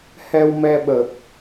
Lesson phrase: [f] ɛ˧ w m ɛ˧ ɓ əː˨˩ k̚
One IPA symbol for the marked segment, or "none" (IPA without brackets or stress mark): h